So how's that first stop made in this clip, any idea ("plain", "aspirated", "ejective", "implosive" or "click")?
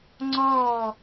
click